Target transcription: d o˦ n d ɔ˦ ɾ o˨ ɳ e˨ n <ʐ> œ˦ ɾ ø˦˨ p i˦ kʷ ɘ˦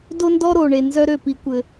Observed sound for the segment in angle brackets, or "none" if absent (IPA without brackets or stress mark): z